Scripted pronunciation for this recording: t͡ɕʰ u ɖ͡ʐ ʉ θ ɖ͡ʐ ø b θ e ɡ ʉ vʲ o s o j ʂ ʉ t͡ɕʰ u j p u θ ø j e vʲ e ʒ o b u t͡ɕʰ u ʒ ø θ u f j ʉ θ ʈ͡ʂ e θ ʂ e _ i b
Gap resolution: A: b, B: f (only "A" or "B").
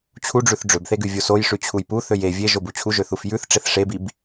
A